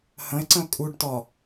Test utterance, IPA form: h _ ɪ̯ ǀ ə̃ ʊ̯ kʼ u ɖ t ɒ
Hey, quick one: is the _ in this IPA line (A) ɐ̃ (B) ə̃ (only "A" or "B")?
B